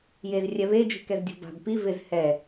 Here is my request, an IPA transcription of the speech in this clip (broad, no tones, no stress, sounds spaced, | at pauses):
j e z rʲ ɛ β e d͡ʒ i̤ k ɛ z dʲ o̤ b a̤ b p i v ɪ z h ɛ